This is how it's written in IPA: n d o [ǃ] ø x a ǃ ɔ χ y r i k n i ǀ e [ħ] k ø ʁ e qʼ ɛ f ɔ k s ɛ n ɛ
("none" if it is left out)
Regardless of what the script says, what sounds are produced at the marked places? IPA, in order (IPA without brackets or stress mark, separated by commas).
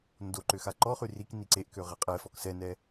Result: ǃ, ʔ